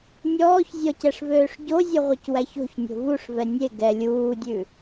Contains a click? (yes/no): no